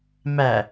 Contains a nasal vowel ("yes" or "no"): no